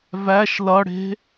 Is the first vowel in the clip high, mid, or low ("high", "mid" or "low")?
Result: low